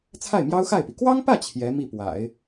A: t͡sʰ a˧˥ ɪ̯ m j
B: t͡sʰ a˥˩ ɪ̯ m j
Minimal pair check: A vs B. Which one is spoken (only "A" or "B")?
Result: B